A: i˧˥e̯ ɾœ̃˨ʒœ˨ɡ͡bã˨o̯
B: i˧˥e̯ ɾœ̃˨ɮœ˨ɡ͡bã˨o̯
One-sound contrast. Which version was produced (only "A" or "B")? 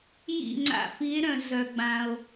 B